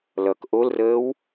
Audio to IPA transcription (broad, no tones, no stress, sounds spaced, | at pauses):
l ʌ k ʔ o l r əː w